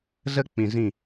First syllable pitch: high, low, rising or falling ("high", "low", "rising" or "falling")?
high